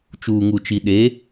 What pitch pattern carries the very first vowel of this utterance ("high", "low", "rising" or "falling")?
low